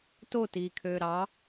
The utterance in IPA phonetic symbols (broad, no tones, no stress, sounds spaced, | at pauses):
t o t iː kʰ øː ɾ ɑ